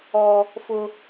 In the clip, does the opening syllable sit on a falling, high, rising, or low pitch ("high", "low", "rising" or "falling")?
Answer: high